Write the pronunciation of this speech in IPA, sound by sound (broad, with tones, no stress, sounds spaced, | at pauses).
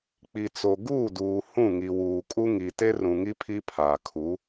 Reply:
k͡p i˨ t͡s o˨ ɡ uː˦˨ d uː˨ h ũ˦˨ ŋ i˨ w uː˨ kʼ u˦ ŋ i˨ t e˦ r ũ˨ ŋ i˦ pʰ i˦ pʰ aː˨ kʰ u˨˦